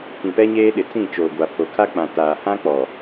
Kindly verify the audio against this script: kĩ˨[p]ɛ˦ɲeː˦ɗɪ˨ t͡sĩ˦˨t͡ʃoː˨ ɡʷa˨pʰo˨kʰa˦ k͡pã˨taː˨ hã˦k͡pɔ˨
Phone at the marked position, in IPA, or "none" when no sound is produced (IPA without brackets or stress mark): p